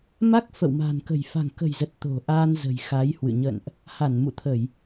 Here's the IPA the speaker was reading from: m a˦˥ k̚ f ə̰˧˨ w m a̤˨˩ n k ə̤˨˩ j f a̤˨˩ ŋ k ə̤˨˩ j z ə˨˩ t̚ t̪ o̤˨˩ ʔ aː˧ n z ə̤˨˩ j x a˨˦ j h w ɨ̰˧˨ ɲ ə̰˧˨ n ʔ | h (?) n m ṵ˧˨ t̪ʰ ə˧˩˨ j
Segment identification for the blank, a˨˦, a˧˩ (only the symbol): a˧˩